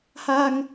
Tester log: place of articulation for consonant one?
glottal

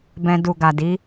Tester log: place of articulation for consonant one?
labial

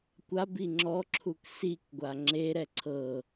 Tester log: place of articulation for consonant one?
velar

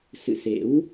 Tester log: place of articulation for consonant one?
alveolar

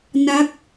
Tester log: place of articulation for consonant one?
alveolar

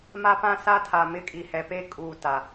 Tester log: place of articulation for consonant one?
labial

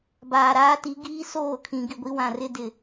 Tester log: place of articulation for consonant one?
labial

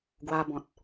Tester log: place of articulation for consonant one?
velar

